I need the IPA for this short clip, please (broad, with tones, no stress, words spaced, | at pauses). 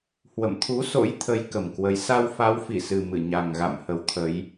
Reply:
hwə̰˧˨mt̪ʰu˨˦so̰˧˥j t̪ʰə˨˦j kə˨˩mkwə˨˦j sa˧wfa˨˦wfi˧˩sɨ˨˩ mɨ˧˩ɲa˨˩ŋɣa̰˧˨m hə˨˦wt̪ʰə˨˦j